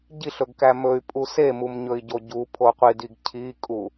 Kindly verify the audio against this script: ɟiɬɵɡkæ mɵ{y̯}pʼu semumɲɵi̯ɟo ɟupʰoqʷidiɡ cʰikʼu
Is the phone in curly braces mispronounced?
no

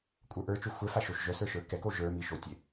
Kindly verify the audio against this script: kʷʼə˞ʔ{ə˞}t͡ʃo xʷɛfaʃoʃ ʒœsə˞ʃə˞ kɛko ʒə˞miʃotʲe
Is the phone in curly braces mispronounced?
no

